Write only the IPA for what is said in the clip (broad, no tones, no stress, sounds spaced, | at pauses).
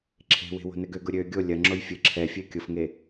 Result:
ǁʰ e̤ w e̤ w o̤ n ɘ ɡ ø ɡ ʊ ɾʲ ø ɡʲ o lʲ ɐ ŋ͡ǁ o j fʲ ɘ ǁʰ ɛ fʲ e kʲ ʊ f ŋ e